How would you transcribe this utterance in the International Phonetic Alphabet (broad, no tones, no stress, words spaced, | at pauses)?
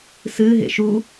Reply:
sɨɦḛ ʃu